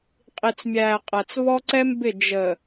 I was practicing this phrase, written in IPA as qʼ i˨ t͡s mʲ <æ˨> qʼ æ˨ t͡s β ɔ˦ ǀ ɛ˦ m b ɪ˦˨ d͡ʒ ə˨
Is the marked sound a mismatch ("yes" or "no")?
yes